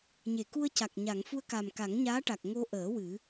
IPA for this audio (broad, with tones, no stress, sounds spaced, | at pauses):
ɲ e˨˩˨ k u˧ ə̯ c a˨˩ k̚ ɲ a˨˩˨ ŋ f u˧ ə̯ k a˨˩ m k a˨˩˦ ŋ ɲ aː˧˥ ʈ a˨˩ k̚ ŋ o˧ ʔ əː˨˩˦ w ɨ˨˩˦